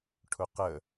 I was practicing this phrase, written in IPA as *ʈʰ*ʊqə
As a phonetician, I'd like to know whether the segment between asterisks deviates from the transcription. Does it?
no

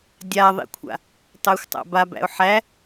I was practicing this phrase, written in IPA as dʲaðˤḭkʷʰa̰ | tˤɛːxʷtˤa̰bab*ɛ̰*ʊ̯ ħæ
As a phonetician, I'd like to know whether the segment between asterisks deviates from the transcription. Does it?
yes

